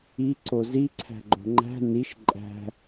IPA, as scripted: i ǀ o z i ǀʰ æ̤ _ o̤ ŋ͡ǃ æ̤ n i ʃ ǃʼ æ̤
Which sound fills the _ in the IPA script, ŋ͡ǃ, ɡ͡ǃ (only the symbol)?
ɡ͡ǃ